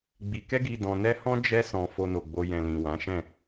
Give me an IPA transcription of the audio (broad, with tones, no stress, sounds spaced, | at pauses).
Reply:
ɡ͡b i˧ k ɛ˦ ɡ i˧ d ɔ̃˧ n ɛ˦ h ɔ̃˦ d͡ʒ ɛ˦ s ɔ̃˧ f o˧ n o˨ ɡ͡b o˧ j ɛ̃˨ l ĩ˨ w ã˨˦ ʃ ɛ̃˦˨